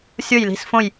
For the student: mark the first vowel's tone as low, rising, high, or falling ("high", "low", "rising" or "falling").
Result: falling